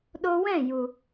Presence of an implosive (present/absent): present